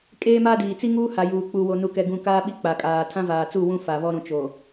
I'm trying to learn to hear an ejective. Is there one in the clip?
yes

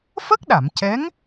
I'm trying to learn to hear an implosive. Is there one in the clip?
yes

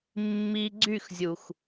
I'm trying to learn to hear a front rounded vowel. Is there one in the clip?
yes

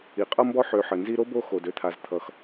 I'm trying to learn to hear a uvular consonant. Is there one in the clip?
yes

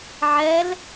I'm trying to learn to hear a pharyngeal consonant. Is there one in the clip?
yes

